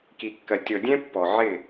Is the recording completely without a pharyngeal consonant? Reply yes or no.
no